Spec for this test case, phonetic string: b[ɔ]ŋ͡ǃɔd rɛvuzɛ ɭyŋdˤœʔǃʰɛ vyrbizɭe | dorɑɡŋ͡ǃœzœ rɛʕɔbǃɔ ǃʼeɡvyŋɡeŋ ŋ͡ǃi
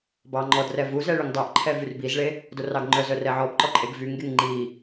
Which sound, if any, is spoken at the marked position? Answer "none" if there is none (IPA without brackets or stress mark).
ɑ